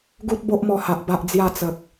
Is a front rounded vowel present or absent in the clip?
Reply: absent